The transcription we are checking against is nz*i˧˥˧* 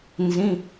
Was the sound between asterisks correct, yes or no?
no